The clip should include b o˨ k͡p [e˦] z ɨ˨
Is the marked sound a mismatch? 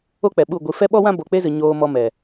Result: no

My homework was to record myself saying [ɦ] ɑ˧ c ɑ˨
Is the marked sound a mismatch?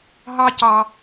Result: no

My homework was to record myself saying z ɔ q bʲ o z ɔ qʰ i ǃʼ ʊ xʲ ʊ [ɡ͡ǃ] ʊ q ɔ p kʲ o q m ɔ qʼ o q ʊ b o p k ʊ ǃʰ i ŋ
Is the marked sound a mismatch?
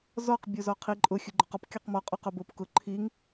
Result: no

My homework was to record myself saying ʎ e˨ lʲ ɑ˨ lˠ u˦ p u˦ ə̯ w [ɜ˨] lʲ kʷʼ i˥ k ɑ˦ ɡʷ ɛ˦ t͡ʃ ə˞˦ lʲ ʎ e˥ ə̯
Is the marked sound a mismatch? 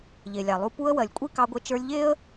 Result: no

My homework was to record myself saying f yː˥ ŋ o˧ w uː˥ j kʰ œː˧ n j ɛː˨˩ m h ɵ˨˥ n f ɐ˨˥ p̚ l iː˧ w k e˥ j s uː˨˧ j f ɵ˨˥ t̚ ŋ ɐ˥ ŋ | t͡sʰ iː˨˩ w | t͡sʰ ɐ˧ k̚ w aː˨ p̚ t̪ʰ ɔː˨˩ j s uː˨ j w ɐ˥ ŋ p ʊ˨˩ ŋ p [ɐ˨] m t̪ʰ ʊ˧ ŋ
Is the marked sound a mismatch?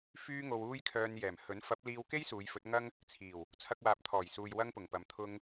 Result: yes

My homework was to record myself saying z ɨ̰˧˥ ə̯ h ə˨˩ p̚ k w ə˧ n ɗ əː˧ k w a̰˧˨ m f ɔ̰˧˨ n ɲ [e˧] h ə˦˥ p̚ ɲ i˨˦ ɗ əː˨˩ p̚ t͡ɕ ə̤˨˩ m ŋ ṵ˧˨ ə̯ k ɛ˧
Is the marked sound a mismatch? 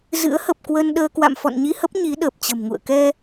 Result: yes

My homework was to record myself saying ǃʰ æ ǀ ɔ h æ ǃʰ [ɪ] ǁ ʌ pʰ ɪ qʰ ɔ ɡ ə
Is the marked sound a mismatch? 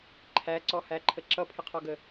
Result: yes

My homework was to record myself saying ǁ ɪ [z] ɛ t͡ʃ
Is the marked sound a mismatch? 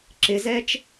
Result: no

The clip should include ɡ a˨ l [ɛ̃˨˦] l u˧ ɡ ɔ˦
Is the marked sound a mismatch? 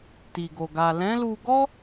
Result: no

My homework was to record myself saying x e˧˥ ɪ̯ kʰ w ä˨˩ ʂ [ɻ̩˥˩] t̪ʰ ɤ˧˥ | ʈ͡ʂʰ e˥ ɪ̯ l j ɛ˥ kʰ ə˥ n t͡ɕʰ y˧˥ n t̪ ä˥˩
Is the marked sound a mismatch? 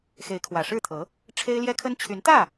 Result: no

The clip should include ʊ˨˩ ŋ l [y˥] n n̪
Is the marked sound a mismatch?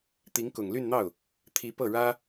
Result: yes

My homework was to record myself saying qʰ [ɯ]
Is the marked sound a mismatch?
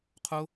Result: yes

